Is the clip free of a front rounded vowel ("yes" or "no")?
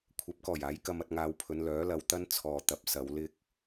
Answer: no